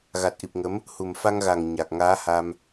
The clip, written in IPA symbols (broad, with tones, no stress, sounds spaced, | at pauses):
ɣ a˨˩ t̚ ʔ i˨˩ p̚ ŋ ə˨˦ m | h u˨˩ m f a˧ ŋ ɣ a˨˩ ŋ ɲ a˨˩ k̚ ŋ aː˨˦ h a˧ m